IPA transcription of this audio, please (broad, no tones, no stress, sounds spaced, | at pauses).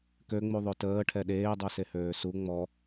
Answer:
k ø ŋ͡m u ðˤ ø t əː ʈʰ ɛ ɗ eː dˤ u s e h øː s u ŋ͡m ɔ